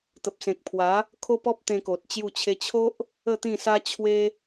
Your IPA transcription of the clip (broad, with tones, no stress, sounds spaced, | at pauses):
t̪ ə˨ p̚ s ẽ˨ k̚ pʰ w a˨˦ | kʰ o˦ p ɔ˦ p̚ t̪ ẽ˧ k o˨ t̚ t͡ɕ j u˥˧ t͡ɕʰ e˧ t͡ɕʰ o˦ ʔ | ə˥˧ t̪ ĩ˥˧ s a˦ t͡ɕʰ w e˦